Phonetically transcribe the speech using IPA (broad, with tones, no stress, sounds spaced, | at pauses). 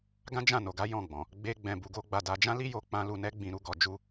ɡ ã˦ d͡ʒ ã˦˨ n o˨ ɡ a˨˦ j ɔ̃˦˨ ɡ͡b ɔ̃˨ | ɡ͡b e˦ ɡ͡b ɛ̃˧ b u˧ ɡ o˦ ɡ͡b a˧ d a˧ d͡ʒ ã˦ l i˦ j o˧ k͡p ã˦ l u˧ n ɛ˦ ɡ͡b ĩ˧ ɾ u˧ ɡ ɔ˧ d͡ʒ u˦